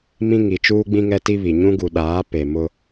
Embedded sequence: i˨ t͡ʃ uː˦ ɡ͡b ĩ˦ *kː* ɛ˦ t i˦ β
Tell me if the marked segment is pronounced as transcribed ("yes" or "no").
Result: no